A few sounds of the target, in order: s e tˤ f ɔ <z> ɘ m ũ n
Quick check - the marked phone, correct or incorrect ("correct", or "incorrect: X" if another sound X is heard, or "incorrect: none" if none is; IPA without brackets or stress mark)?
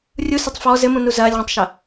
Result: correct